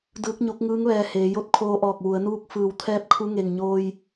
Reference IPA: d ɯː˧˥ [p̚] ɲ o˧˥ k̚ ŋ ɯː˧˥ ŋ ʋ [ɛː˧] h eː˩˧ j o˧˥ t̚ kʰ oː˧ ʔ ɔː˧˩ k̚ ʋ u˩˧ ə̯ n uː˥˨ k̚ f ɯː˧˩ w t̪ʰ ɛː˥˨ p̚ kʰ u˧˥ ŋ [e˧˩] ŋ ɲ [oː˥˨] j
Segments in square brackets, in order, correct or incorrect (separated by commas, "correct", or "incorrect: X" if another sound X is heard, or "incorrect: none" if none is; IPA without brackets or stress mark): incorrect: k̚, correct, correct, incorrect: oː˧